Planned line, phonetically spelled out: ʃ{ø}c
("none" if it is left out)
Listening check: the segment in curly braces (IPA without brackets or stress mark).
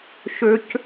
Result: ø